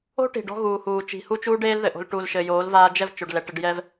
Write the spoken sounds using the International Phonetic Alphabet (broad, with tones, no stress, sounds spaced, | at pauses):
o̤˦ ʈ i̤˨ ɖ ɔ̤˧ ɣ uː˨ h uː˨ t͡ʃ i̤˨ h u˦ t͡ʃ uː˦ ɖ eː˦ l ð ɘ˨ ʔ o̤˧ l ʈ u˨ l ʃ ɘ˨ j oː˨˦ l v aː˧ d͡ʒ ɛ˦˨ v t͡ʃ o˨ ɖ l ɛ˨ ʈ ɘ˧ ɖ j ɛ˧ v